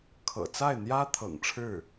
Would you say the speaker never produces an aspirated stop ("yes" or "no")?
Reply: no